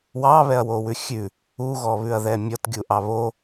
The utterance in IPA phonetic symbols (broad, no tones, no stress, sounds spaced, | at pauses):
w ɑ β ɛ ɐ̯ w o w ʉ xʲ ʉ | u ɣ ɔ β ʉ ɐ̯ ð ɛ mʲ ɔ t ɡʲ u ʔ ɑ β o